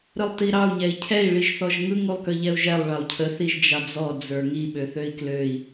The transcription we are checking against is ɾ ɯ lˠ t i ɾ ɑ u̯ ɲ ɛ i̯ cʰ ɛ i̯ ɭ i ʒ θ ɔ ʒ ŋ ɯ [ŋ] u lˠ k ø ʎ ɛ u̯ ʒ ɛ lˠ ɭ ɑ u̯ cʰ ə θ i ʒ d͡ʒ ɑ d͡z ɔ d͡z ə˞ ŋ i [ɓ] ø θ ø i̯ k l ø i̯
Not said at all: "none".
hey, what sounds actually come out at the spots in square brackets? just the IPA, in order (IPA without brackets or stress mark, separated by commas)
ŋ, ɓ